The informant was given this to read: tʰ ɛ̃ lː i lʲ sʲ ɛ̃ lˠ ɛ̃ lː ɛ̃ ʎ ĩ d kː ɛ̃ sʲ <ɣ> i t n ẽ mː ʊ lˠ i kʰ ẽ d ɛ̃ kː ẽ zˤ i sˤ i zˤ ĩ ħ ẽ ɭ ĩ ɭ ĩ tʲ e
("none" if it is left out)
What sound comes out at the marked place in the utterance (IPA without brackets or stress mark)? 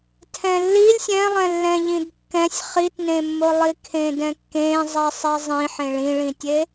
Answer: χ